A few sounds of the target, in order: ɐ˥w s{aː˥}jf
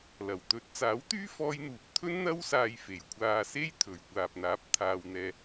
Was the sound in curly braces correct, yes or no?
no